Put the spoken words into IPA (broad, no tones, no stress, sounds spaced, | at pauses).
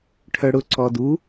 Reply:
ʈʰ œ ɽ ʊ ǀ ɔ d u